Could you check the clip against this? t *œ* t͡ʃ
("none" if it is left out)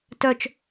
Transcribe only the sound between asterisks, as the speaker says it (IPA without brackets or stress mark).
œ